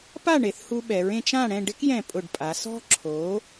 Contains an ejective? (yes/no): yes